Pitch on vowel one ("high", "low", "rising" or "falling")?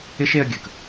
high